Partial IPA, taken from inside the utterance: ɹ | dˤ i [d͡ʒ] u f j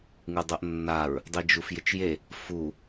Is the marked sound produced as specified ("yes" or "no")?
yes